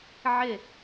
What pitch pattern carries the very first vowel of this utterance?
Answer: falling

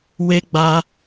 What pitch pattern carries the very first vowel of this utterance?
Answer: high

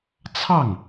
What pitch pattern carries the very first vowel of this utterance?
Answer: falling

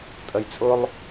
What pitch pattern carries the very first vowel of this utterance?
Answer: low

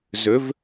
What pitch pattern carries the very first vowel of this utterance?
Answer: rising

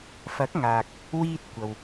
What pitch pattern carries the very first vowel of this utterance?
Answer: rising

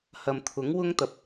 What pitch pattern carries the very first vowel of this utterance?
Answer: low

